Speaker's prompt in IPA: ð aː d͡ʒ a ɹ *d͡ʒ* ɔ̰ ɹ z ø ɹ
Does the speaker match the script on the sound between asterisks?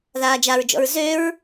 yes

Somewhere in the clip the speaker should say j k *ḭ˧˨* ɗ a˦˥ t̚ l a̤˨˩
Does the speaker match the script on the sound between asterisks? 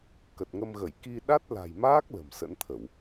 no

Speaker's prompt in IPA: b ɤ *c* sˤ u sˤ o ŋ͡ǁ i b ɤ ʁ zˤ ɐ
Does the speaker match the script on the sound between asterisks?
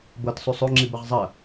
no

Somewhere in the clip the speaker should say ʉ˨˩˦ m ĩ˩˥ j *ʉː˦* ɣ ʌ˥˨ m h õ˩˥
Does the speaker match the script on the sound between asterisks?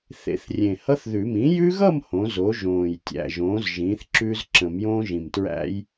no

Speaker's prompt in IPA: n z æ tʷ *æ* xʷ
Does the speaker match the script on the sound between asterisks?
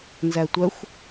no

